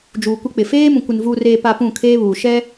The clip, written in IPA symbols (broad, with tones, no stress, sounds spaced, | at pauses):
d͡ʒ uː˨ kʷ ɪ˦ k͡p ɪ˨ f eː˦ m ũ˨ kʷ ɪ˨ n v uː˨ r eː˨ p a˨ p ũ˦˨ kʰ eː˦ β uː˨ ʃ ɛ˦